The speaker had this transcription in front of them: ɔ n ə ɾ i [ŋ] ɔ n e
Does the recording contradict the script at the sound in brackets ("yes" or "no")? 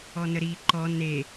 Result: yes